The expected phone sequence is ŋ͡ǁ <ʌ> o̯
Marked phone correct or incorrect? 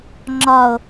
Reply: incorrect